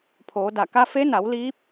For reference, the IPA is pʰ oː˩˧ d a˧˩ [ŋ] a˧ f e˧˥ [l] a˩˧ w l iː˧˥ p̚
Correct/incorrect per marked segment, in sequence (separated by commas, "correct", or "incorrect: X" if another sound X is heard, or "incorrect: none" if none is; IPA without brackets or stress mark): incorrect: k, incorrect: n